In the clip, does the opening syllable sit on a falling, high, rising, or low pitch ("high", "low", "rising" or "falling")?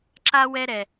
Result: high